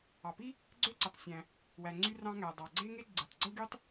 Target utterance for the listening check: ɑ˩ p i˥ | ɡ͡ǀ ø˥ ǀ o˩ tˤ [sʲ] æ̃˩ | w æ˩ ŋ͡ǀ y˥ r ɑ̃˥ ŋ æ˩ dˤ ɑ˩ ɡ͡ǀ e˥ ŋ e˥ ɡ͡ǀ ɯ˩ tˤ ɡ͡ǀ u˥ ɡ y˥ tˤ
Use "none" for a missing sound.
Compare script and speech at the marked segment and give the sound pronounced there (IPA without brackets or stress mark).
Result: sʲ